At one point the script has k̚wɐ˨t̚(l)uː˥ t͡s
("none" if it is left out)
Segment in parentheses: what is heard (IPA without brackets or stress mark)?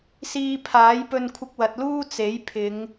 l